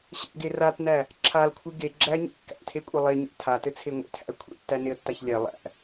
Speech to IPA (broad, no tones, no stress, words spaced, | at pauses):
ɕɛ̰ɡe ratnæ | ǁʰalkʷʰɨ ɡe ɡ͡ǁæɲḛ kːæ̰tʰekʷʼɘ lˠeɲæ̰ tʰatɘt͡sʰe ŋʷḛtʰæ̰ə̯ kʷʰḛtːæneə̯tːaç lʲɛ lˠæ̰